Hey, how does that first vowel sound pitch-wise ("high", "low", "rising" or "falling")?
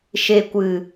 low